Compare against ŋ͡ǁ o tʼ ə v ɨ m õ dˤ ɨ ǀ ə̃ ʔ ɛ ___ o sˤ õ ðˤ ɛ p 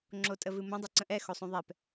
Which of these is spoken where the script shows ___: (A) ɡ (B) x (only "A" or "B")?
B